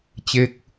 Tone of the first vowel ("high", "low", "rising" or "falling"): falling